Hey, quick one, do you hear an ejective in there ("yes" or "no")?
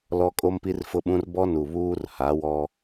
yes